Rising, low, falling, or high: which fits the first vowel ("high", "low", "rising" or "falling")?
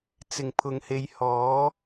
low